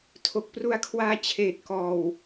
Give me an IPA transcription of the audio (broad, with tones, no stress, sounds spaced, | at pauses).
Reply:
tʰ o˨˩ k̚ p r u˧ a̯ kʰ w aː˧ t͡ɕʰ eː˨˩ t̚ k ɔː˨˩ w